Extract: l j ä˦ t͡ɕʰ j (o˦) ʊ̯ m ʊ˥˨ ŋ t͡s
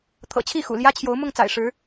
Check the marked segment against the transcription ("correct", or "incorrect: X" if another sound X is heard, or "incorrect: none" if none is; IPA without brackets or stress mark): incorrect: o˨˦